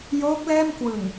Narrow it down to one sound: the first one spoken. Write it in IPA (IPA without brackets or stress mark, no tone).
j